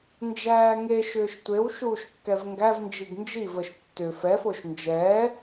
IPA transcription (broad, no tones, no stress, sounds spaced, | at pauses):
n d͡ʒ æː ŋ e ʃ ʏː ʃ tʷ e w ʃ uː ʃ kː ɛ v ŋ ɡ æ v n d͡ʒ i ɡ n d͡ʒ i v ə ʃ tː ʏ f ɛ f o ʃ n d͡ʒ ɛ